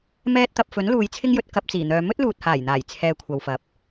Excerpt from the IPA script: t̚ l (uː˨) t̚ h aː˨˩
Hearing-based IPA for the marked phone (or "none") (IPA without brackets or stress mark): uː˨